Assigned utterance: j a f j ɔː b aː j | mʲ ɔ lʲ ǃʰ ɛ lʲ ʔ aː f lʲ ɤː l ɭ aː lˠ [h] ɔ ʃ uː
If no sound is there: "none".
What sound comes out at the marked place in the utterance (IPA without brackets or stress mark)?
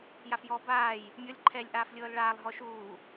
ɦ